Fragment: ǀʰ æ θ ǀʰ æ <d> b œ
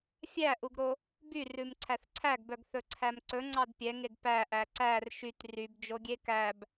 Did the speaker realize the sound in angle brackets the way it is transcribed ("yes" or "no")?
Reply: no